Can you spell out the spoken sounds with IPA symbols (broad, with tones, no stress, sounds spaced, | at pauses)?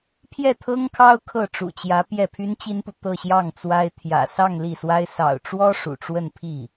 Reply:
pʰ j ɛ˥˩ t̪ʰ ɤ˥ ŋ kʰ ɑ˥ ʊ̯ kʰ ɤ˥˩ ʈ͡ʂ ṵ˨˩ t͡ɕ j ä˧˥ p j ɛ˥˩ pʰ y˥ n t͡ɕ i˥ n p u˨ t̪ ɤ˥˧ ɕ j ɑ˥˩ ŋ t͡s w a˥ ɪ̯ t̪ʰ j ä̰˨˩ s ɑ˥˧ ŋ l i˥˩ s w a˥ ɪ̯ s ɑ̰˨˩ ʊ̯ ʈ͡ʂ w ɔ˥ ʂ ṵ˨˩ ʈ͡ʂ w ə˥˧ n pʰ i˥˩